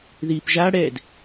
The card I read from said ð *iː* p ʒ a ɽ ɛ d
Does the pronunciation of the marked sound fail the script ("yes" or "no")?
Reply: no